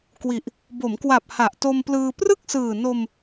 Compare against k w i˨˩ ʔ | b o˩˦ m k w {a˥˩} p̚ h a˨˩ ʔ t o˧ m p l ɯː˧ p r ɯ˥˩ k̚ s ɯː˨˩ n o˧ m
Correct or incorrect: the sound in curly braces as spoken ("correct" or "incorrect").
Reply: incorrect